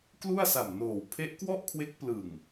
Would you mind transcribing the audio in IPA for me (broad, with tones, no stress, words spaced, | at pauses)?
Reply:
klu˥˩a̯sa˨˩mnoː˨˩w pʰe˦˥ʔkwɔ˥˩ʔkʰwe˦˥k̚ plɯ˨˩ŋ